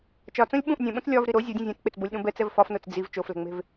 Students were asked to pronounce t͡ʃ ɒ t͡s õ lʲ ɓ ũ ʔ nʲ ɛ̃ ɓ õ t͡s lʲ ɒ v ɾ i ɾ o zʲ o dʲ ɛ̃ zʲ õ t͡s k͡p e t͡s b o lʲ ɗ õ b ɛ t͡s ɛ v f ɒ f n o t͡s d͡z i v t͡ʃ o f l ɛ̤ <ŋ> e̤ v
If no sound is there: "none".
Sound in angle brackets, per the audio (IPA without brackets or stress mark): ŋ͡m